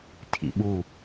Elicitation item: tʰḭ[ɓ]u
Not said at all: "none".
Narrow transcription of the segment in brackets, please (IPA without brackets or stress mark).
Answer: ɓ